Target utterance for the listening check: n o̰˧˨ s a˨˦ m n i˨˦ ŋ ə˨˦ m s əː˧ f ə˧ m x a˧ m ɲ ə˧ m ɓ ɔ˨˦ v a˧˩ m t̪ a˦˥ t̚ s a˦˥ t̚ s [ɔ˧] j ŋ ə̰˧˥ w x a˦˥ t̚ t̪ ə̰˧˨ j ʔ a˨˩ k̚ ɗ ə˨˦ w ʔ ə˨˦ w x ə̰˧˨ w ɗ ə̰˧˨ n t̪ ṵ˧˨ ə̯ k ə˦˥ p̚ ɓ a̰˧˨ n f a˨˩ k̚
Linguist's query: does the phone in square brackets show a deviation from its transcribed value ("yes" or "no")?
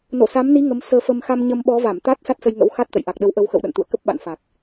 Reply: yes